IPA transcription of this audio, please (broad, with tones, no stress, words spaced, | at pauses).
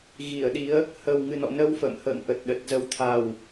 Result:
ɣi˧˩ə̯ɗi˨˦ə̯ | hə˨˩w ŋɨ˨˩nɔ̰˧˨nə˧w fə̰˧˨mhə̰ː˧˨ŋʔə˨˩t̚ ɗə˨˩t̚zə˧w t̪ʰa˨˩w